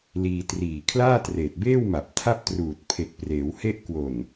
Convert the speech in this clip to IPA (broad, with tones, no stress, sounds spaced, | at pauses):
l iː˧ t r iː˨˩ kʰ l aː˥˩ t r eː˨˩ t̚ b eː˥˩ w m a˨˩ p̚ tʰ a˥˩ p̚ t r uː˨˩ t̚ pʰ e˨˩ k̚ p r eː˩˦ w h e˦˥ ʔ k w o˨˩ n